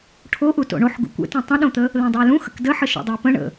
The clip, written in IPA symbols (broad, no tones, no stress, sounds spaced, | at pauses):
ʈʰ o ʔ u t o̰ ɳ o ħ ɡ ṵ kʷ ə̰ t ũ tˤ ə̃ ɗ õ t̪ ə | l õ dˤ ə j l ũ x ə̰ k d ə ħ ə ʃ ṵ dˤ ə ʊ̯ p ə̃ ɳ ə̰